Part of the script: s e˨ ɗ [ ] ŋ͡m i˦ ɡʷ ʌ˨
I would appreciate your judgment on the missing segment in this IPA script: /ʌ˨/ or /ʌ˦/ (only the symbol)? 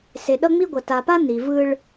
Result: ʌ˦